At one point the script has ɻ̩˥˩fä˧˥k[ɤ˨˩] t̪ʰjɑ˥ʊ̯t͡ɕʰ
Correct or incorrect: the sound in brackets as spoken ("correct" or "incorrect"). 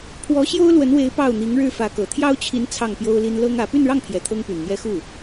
correct